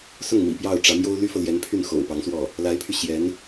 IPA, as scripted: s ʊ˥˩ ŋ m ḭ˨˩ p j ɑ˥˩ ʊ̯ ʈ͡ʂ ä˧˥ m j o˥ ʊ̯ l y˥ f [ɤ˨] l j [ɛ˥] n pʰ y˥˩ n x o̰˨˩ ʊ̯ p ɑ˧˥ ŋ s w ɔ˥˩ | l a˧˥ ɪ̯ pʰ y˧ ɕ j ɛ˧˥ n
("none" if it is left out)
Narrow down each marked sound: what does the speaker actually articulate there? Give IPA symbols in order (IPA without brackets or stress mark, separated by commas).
ɤ˨, ɛ˧˥